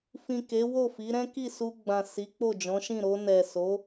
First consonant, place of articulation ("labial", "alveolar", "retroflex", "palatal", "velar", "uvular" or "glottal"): labial